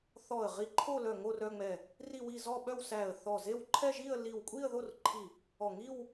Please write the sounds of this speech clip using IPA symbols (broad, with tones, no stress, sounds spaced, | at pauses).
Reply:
θ ɔ˧˩ ə̯ ʁ i˧˩ ǃʰ o˥˧ l œ˧˩ ŋ o˥˧ r œ˥˧ ŋ͡m ɛ˧˩ | r i˥˧ w i˥˧ z ɔ˥˧ ɓ œ˥˧ w s æ˧˩ ə̯ θ ɔ˧˩ z e˥˧ w ǃʰ ɛ˥˧ ʒ i˥˧ ə̯ l i˧˩ w kʷʼ i˥˧ ə̯ ð o˥˧ r ǃʰ i˧˩ | ɔ˧˩ ŋ i˥˧ w